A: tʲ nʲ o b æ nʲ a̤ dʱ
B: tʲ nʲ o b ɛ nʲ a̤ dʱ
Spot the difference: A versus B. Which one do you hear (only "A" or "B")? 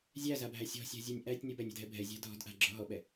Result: A